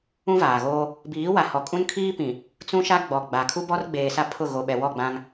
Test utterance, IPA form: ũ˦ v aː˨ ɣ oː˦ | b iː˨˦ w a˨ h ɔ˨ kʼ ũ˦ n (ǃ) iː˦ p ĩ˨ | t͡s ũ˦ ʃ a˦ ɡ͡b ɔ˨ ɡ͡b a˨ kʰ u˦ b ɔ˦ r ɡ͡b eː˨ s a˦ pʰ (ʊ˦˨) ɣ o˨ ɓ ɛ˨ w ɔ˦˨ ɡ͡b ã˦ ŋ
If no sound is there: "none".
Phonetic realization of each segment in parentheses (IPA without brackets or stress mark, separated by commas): kʰ, ʊ˦˨